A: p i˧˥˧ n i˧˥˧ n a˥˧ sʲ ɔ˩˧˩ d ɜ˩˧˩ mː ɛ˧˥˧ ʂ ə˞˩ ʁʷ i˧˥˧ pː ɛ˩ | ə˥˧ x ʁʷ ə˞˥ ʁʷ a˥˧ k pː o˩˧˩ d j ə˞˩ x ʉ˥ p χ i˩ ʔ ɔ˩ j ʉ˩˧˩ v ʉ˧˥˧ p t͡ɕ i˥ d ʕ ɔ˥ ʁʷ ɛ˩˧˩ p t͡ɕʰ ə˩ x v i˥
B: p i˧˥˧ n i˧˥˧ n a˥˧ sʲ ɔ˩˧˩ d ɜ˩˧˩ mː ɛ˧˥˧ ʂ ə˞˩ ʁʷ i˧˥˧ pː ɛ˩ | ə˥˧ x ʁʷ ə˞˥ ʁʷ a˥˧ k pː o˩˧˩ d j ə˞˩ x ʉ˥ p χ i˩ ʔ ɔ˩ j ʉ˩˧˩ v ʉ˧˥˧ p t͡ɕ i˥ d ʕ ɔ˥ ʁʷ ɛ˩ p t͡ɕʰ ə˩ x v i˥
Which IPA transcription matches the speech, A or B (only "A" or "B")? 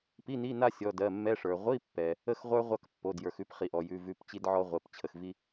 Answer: A